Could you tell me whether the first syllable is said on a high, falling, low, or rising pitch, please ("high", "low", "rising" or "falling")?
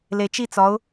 low